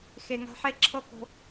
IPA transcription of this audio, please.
x e˨ ŋ a̤˧ ħ e˦˨ ǁʰ ɤ˦ k o̤˧

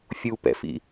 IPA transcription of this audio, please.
fʲ u p ɛ̰ f ḭ

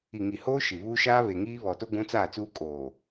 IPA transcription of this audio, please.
i˨ ŋ i˨ h oː˦ ʃ i˨ β uː˦ ʃ aː˦ β e˨ ŋ iː˦ β ɔ˨ t o˦ ɡʷ ũ˦ t͡s aː˦˨ t͡s uː˦ kʼ oː˨

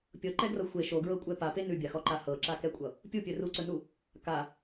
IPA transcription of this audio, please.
pʲ ɤ ǃ ɛ ɡ r ʌ xʷ e ʃ o ɡ ɹ ɤ kʷʼ ɛ p a p e n ʉ bʲ a x ɔ ǃ a h ɤ ǁ a k ɛ kʷʼ ʌ | pʲ u pʲ ɵ r u ǀ ɵ n u | k a

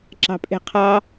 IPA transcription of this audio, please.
ǁ ɑ̤ pʼ e̤ qʰ ɑ

